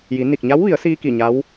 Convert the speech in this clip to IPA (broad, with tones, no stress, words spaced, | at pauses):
ji˩˧ ni˧˩k̚ɲa˧˥wʋi˩˧ə̯siː˧ ki˧˩ɲa˧˥w